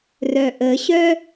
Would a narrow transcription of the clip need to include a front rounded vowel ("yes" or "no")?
yes